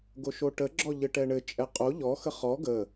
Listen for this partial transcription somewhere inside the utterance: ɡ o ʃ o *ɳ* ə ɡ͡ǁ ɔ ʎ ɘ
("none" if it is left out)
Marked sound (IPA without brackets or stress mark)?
ʈ